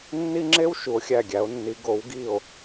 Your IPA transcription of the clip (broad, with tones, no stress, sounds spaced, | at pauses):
nː i˥ ŋ͡ǁ e˥ w ʃ u˨˥ o̯ xʲ æ˦˨ ɡʲ æ˨˥ o̯ nː i˨˥ ɡ o˨˥ w ɡ i˦˨ o̯